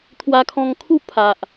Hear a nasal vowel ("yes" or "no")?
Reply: yes